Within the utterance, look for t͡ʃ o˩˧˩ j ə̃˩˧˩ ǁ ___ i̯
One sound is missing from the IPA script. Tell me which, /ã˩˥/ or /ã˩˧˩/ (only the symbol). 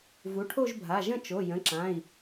ã˩˧˩